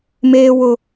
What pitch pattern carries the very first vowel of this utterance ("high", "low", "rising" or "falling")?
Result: high